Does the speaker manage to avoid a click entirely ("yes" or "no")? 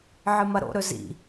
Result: yes